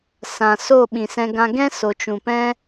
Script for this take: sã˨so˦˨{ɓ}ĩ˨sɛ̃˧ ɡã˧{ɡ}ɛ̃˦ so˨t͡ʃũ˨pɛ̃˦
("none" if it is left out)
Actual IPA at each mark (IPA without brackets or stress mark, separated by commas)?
ɓ, ɡ